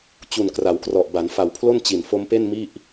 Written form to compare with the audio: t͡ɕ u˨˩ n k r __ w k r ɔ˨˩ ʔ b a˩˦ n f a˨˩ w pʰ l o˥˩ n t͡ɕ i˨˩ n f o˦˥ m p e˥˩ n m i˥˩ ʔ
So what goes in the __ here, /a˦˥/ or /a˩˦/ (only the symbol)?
a˩˦